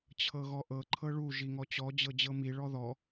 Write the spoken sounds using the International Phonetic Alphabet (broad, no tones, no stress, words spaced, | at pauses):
t͡ɕʰɤɣɔʔɤ ǃʰɤɭu ʒiŋɔt͡ɕɔ d͡ʑɤd͡ʑɤmi ɭɔðɔ